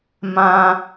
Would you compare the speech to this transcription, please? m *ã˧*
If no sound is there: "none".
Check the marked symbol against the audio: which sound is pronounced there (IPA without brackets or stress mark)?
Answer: ã˧